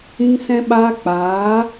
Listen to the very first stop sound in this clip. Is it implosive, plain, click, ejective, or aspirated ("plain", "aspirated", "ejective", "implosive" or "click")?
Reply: implosive